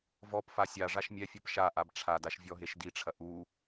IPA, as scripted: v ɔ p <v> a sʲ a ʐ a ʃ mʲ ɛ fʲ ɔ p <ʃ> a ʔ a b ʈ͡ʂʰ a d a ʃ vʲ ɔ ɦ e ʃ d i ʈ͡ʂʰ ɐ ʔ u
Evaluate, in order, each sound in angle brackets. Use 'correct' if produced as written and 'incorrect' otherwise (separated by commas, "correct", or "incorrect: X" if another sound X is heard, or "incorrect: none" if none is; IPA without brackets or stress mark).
incorrect: f, correct